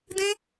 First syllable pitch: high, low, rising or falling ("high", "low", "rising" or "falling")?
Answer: high